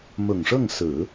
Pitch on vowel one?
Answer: low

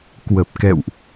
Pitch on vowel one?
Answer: low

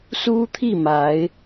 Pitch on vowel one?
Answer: high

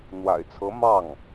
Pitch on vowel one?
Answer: low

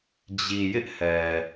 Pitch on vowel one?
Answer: low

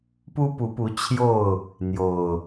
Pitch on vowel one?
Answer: high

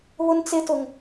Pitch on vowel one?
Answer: high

